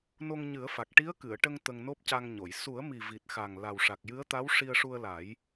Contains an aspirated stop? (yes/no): no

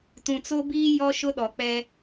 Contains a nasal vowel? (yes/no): yes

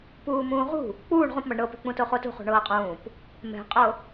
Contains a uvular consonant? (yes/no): yes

